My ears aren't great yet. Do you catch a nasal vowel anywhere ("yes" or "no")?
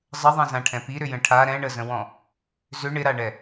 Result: yes